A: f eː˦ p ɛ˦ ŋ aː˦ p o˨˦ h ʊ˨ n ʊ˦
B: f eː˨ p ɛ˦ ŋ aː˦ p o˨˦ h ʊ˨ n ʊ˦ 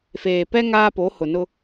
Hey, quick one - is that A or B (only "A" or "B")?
B